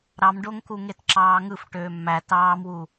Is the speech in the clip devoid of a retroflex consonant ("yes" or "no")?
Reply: no